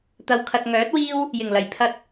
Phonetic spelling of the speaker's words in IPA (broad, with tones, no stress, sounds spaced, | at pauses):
t̪ ɐ˨ w kʰ ɐ˨ t̚ ŋ œː˨˥ t̚ w iː˥ w | j ɪ˨˩ ŋ l ɐ˨˩ j pʰ ɐ˨ t̚